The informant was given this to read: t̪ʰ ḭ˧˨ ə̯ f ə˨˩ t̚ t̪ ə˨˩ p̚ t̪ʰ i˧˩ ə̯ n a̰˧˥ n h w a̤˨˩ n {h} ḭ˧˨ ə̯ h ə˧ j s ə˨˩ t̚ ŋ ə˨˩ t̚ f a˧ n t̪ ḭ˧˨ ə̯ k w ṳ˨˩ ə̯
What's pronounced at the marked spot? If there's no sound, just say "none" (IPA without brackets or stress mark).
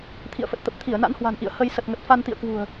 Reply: ʔ